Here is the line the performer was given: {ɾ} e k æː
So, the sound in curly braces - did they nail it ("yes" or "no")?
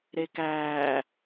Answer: yes